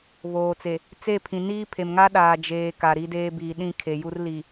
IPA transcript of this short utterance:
βoː˨t͡se˨ | t͡se˦˨pʰĩ˨niː˦ pʰe˨mŋa˦ ɗaː˨d͡ʒeː˨ ka˨ɾi˦deː˦ biː˨ɗĩ˦˨ kʰe˨ju˦r li˨

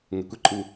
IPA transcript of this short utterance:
ŋe˨kʷe˦ǃʼu˨

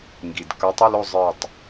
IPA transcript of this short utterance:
ŋɡi˩d kə˞˨˦tˤə˧˥˧lo˦˨ zˤə˞˦˨tˤ

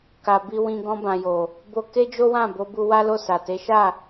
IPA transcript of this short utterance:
ka˨ bi˧wĩ˧ ɡɔ̃˧bã˨jo˨ | bo˧ke˦d͡ʒo˦wã˦˨ bo˧bu˧ wa˦lo˦˨sa˨ te˨˦ʃa˦˨

